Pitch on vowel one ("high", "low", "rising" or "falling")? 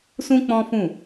high